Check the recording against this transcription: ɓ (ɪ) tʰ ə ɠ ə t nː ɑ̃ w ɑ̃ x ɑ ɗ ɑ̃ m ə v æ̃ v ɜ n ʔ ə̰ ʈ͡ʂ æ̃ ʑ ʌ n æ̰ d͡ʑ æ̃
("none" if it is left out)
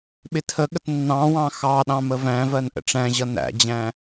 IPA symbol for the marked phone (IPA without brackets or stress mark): ɪ